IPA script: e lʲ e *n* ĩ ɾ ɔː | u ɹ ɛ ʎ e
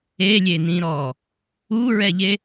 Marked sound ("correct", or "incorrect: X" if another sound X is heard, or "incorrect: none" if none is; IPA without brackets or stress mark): correct